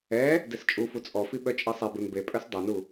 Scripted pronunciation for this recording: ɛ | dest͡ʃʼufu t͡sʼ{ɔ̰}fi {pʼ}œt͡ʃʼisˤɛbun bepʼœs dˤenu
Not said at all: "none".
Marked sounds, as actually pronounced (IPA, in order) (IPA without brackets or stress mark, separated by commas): ɔ, ɓ